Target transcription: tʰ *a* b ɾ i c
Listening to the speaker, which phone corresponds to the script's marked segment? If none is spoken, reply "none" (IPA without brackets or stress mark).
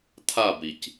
a